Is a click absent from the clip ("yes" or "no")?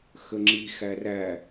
no